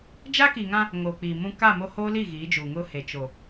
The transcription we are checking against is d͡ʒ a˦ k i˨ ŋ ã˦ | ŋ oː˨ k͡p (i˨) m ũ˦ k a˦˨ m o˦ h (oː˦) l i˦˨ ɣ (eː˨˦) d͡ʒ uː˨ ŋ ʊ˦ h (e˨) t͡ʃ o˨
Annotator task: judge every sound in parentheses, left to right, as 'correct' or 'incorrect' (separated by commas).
incorrect, correct, incorrect, correct